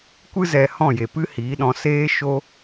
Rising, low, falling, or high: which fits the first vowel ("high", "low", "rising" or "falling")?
high